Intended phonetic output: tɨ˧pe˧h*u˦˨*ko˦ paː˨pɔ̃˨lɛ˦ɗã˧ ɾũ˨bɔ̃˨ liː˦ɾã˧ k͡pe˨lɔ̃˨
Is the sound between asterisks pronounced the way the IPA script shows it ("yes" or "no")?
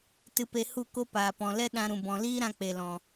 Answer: yes